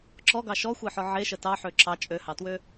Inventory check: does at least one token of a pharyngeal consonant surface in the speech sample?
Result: yes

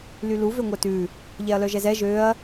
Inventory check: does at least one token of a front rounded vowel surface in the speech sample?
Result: yes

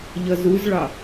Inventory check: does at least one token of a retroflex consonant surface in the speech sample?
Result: yes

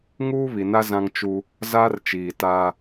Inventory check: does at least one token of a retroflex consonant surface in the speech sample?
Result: no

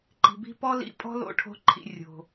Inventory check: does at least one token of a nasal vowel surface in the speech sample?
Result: no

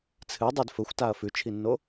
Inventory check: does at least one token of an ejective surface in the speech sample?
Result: no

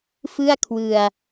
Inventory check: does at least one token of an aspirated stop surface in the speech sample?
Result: yes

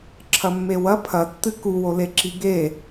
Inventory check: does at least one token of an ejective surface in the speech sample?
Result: no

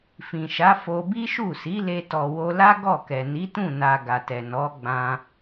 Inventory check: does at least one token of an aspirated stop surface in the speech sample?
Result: no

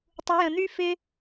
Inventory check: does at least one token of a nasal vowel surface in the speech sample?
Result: yes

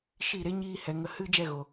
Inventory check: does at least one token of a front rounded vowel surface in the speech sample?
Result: no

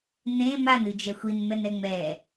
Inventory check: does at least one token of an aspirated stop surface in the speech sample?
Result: no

